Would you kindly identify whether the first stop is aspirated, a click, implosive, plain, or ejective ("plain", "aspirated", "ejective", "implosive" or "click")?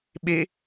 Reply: implosive